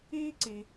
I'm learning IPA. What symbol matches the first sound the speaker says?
iː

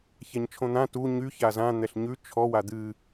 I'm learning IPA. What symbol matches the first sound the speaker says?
ç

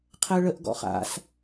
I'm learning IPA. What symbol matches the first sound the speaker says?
qʰ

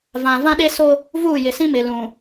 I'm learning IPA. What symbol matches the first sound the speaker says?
v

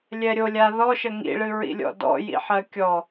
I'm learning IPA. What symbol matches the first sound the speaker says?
lʲ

